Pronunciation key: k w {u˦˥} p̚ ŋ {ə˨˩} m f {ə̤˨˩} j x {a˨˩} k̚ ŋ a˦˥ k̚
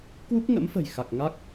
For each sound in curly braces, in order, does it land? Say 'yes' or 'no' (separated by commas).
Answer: yes, no, yes, yes